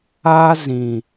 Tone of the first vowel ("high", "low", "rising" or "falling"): high